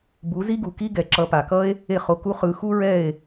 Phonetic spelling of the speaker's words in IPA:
b u˨˦ z i˦ ɡ u˨ k i˦ ɡ ɛ˨ ǁ ʌ˨˦ p a˨ k ʌ˦ e̯ | e˦˨ χ o˧ k u˦ χ ɯ˧ x u˦ ɹ ɛ˦˨ e̯

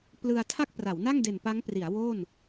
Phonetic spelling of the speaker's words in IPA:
p l ɯ˧ a̯ tʰ a˥˩ k̚ p r a˩˦ w n a˥˩ ŋ d e˨˩ n p a˦˥ ŋ p r i˩˦ a̯ w o˥˩ n

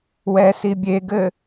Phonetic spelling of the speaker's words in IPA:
w ɛ s i bʲ e ɡ ɘ

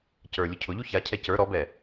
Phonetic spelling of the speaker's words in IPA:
c ə˞ lʲ ʊ cʰ ʊ ʎ u ç a cʰ ɛ c ə˞ ɾ ɔ b ɛ

